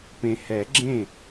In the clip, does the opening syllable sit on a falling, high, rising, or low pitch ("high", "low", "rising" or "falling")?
low